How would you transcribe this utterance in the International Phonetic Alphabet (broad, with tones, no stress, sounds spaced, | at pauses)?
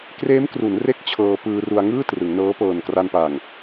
k r eː˦˥ m k r u˩˦ n r e˦˥ k̚ t͡ɕʰ ɤː˧ p ɯː˧ r u˧ a̯ ŋ ɯː˥˩ t r ɯ˩˦ ŋ n ɤː˦˥ p ɤː˨˩ n k r a˧ n p aː˨˩ ŋ